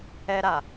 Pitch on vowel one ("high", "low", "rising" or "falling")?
high